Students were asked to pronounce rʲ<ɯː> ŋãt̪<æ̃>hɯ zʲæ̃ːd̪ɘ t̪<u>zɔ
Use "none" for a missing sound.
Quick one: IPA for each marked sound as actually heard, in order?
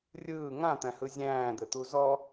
ɯː, æ̃, u

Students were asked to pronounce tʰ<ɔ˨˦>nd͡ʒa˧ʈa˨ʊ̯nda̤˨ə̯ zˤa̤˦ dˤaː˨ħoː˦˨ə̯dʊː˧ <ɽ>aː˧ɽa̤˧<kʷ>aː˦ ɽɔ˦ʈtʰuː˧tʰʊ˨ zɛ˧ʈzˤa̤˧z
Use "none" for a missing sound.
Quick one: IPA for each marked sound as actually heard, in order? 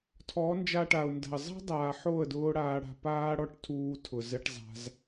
ɔ˨˦, ɽ, p

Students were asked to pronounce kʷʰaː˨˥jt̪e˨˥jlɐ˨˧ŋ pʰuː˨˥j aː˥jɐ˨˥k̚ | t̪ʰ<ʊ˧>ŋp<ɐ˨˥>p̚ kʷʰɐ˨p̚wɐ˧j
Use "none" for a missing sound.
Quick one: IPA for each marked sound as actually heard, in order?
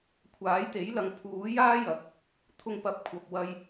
ʊ˧, ɐ˨˥

